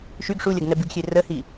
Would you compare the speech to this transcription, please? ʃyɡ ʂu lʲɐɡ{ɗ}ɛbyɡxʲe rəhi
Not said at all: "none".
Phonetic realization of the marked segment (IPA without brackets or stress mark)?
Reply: n